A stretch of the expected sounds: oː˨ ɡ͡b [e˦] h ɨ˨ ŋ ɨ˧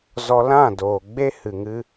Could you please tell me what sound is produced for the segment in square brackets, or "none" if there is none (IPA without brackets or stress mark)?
e˦